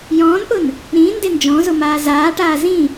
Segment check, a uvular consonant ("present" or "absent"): absent